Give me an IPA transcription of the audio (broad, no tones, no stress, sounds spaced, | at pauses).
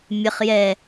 mʲ ə χ j ɛ